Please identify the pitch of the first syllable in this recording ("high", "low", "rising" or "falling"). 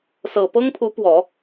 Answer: low